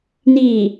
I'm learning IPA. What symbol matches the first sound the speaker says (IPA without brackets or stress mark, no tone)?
n